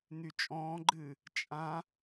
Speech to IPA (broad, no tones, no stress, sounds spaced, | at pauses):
n̪ y t͡ʃʼ ɔ̃ː ɡ͡ǃ ɨː | t͡ʃʼ ã